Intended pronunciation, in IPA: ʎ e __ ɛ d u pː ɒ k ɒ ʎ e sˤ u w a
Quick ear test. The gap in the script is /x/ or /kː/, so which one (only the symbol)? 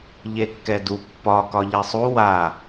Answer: kː